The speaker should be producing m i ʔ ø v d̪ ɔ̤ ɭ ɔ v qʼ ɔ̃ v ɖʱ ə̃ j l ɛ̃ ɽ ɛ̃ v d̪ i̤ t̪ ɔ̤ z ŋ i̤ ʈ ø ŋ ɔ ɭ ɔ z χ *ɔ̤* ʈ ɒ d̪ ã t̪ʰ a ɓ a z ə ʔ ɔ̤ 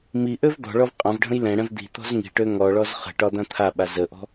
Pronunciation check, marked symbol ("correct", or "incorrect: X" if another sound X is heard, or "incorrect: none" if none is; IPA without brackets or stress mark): incorrect: ə̤